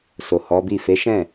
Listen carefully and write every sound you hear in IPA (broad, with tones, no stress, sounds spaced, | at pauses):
s o˨ h ɔ˨˦ b i˦˨ f e˨˦ ʃ ɛ̃˦˨